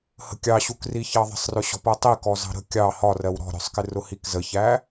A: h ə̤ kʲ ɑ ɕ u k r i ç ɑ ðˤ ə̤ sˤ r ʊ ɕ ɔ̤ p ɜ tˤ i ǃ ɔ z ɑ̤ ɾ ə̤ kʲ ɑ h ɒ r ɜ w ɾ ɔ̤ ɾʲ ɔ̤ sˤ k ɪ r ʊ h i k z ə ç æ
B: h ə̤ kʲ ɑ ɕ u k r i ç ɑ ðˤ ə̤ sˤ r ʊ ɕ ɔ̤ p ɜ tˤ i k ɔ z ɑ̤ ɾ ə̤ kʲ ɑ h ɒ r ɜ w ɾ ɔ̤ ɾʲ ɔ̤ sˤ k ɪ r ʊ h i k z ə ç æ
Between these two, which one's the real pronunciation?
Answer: B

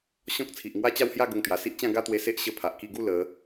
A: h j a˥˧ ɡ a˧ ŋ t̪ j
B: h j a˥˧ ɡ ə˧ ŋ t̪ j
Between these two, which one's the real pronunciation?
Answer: B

